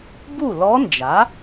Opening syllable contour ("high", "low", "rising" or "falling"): falling